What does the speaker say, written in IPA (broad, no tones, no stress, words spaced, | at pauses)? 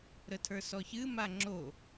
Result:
ɾətʰə˞sɔçɨ maŋ͡ǁo